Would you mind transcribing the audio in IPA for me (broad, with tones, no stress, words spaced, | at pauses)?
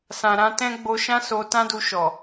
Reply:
sã˨ɾã˧ tɛ̃˦ ɡ͡bo˧ ʃã˦so˧tã˦ du˧ʃɔ˨